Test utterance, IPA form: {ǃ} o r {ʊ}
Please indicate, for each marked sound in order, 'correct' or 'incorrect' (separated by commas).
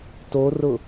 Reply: incorrect, correct